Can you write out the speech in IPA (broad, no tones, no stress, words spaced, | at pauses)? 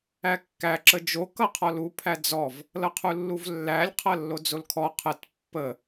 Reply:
ækːæ ǁəd͡ʒo kʌqʰɔlu pʰæd͡zɔv | lʌqʰulːuvlːælʲ qʰʌlːod͡zolkʰɔ qʰət pːə